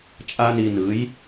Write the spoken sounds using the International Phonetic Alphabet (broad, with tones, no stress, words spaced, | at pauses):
t͡ʃʼa˦ ni˧nɯ˨˦j